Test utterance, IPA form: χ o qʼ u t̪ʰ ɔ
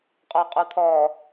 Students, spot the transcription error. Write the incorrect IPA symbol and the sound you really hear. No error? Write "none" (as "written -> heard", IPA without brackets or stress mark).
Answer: χ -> qʼ